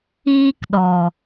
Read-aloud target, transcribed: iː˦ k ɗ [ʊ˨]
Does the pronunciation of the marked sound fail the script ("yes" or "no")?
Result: yes